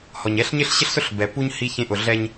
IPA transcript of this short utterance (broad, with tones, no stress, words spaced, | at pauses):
hɔ˨ɲɛ˦ɬ ɲɪ˦ɬɕɪ˦ɬsʊ˦ɬ bɛ˨pu˦ɲ hi˦çẽ˦ ʔʊ˨ɮɛ˦ɲ